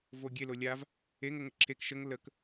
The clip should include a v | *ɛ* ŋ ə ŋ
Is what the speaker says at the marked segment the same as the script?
no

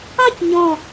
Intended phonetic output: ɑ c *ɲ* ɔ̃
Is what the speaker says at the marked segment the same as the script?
yes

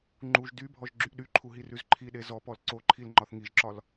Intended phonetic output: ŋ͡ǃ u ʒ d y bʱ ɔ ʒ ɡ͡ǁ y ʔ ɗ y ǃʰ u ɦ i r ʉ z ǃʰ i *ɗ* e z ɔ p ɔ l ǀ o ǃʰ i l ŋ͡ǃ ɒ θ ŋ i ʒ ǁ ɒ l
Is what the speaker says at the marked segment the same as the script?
yes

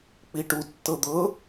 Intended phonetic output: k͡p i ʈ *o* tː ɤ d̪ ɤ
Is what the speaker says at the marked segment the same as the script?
no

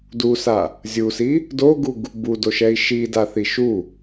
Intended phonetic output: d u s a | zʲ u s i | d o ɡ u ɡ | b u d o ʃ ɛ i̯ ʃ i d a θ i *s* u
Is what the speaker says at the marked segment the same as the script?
no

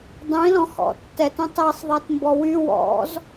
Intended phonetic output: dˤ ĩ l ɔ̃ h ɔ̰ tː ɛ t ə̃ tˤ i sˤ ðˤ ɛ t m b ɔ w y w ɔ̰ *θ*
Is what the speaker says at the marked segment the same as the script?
no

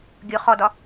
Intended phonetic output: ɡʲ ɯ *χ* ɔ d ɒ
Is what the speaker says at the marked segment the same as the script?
yes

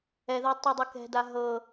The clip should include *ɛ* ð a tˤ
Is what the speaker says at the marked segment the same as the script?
yes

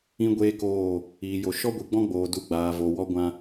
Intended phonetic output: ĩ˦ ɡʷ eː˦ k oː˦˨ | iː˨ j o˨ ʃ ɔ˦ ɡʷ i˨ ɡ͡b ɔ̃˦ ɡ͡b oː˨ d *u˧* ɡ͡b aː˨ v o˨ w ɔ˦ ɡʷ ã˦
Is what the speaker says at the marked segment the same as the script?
yes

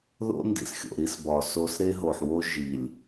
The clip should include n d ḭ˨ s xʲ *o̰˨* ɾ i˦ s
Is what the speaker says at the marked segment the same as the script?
yes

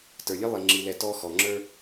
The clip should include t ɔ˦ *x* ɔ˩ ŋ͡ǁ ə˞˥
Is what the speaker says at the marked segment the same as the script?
yes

